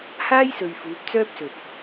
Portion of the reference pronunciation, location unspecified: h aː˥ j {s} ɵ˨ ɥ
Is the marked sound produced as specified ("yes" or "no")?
yes